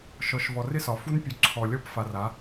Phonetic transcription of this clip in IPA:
ʃ ɔ˨ ʃ v ɔ˨ r ɪ˦ s ɒ˨ f u˦ n pʲ u˨ ǀʰ ɔ˨ lʲ ɔ˦ p f a˨ r a˨˦

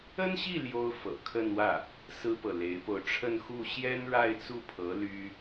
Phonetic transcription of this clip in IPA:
ə˥ n ɕ i˥˩ l j o˥ ʊ̯ f ɤ̰˨˩ kʰ ə˥˧ n w ä˥˩ | s ɹ̩˥ p ɤ˨ l e˧˥ ɪ̯ p o˧ ʊ̯ ʈ͡ʂʰ ə˥˧ n x u˥˩ ɕ j ɛ˥ n ɻ a˥˧ ɪ̯ t͡s u˥˩ pʰ ɤ˧˥ l y˥

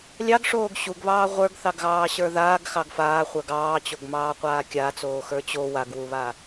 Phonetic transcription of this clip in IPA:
lʲ ɑ ɡ ʂ oː ɡ ɕ u ɡ β ɑː ʁʷ ə˞ ɡ θ ɑ ɡ ɣ ɑː ɕ ə˞ ð aː ɡ x ɑ ɡ f aː χʷ ə˞ ɡ ɑː t͡ɕ o ɡ m ɑː qʷ aː kʲ a t͡s oː x ə˞ t͡ɕ o w a ɡ w u β a

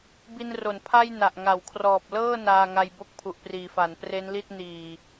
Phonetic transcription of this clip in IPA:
b i˧ n r o˩˦ n pʰ a˥˩ j n a˨˩ ʔ ŋ a˩˦ w kʰ r ɔː˨˩ p̚ l ɤː˥˩ n aː˧ ŋ a˧ j b o˥˩ k̚ pʰ u˨˩ ʔ p r iː˩˦ f a˩˦ n p r e˦˥ n l i˥˩ t̚ n iː˨˩

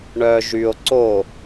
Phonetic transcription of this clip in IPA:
ɳ œ ʒ y o̯ ǀ o

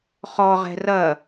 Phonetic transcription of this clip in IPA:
χ ɔ ʁ ɛ̤ r ɐ

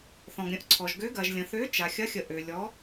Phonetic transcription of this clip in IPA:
θ ɔ̃˩ ɡ ɾʲ ə̃˨˥ ʔ ǀʰ ɔ˩ ʒ ɡ ø˨˥ ɡ ɐ˩ ʒ lʲ ə̃˩ θ ø˨˥ t͡ʃ a˩ xʲ ɐ˨˥ xʲ ə˩ ʔ ø˩ lʲ ɔ˨˥

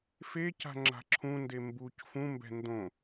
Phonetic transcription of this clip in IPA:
f e c a̤ ŋ͡ǁ a̤ ǁʰ ũ n d e m b u c f ũ m b ɛ̤ n d õ

